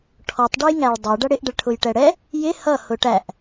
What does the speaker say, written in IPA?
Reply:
ʈʰɔtˤɖʊj ŋæɭdˤɛ ɖʌɽɪʔɖəɭʈʰʊj ʈɛɽɛ | jɪ hʌ hʊʈæʔ

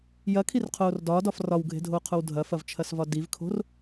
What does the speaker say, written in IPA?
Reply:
jɐkʰirqʰoːr dɒːdɒf rɒwɡʱe̤dʱoːqʰow dʱɐfɐvt͡ʃʰɐsvɒ divkʰo̤r

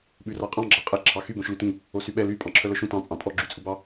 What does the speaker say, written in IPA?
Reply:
ɓʉrɑqʼɑ̃ ɡ͡ǁɑqʼɛ ǁʰɑxy bõʃlytĩ | osyɓɛ ly pʼɑ̃ǁʰœlœʃũ tɑ̃ t͡sʼɑ̃tʼɔ ɡ͡ǁyt͡sʼubɑ

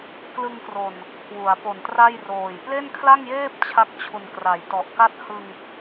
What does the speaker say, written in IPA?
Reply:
klɯ˧ŋkro˨˩n | kʰwu˩˦a̯po˨˩ntra˥˩jroː˨˩j ple˥˩nkʰla˥˩ŋjeː˥˩p̚ t͡ɕʰa˥˩k̚t͡ɕʰu˨˩nkra˩˦j tɔ˨˩ʔka˥˩t̚ hɯ˧ŋ

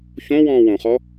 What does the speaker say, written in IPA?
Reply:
çõwɔ̃ː wõχɔ

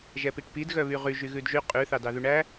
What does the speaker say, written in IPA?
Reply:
ʒɛpiʈpid ɣœβyʁyʒ yɣʉdʒy qʼʉ θɑdɑðʉɳæ

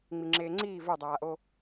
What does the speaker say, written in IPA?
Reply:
ŋ͡miŋ͡ǁeːŋ͡ǀiː və˞dˤaːʔo

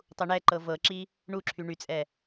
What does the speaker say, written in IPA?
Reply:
tˤuɳɛǃɤ vɤǁi | ɳuǁʰy ɳyt͡sʼɛ

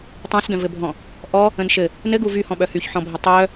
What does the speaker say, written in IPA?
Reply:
tˤœ̃sdœ̃vɘbʱɔ̃ | ʔɔ | ə̃nʃɘ | nɘɡuv yhɔ̃ ɓœhyçħɔ̃bʱɘ tˤœ

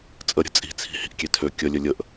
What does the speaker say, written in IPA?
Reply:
t͡sʼəɾʲə̤ t͡sʼi̤t͡sʰi̤ hi̤ʔkʲetʰø kʲəlʲə lʲəʔ

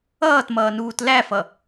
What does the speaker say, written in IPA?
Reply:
ʌːtmʌː nuːtlæfʌ

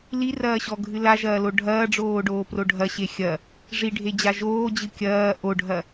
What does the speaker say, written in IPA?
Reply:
lirɐːɕɔɡʱɨ laʒɐːlo ɖʱɐːɖ͡ʐoːɖoːpro ɖʱɐɕe xʲɐ | ʐiɖʱed͡ʑa ʒoːd͡ʑɨ kʲɐː ʔoɖʱɐ

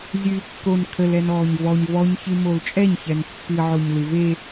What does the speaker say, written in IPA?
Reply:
zʲɨːkːon kʰəlɛn ɔːɲvɔɲ vɔɲçɨ molt͡ʃʼɛɲçɛn pːɨʕoɲ lɨve

